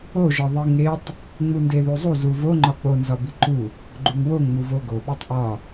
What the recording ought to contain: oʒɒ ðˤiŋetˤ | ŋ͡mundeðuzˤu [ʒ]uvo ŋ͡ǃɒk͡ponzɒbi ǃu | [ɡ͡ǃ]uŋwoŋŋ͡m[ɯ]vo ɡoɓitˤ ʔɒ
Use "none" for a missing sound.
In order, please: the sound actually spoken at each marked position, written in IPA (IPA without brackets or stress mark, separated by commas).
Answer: z, ɡ͡ǃ, u